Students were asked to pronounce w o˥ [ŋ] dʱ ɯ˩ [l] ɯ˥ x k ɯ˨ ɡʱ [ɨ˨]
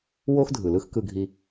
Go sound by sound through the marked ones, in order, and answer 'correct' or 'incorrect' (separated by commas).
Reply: incorrect, correct, incorrect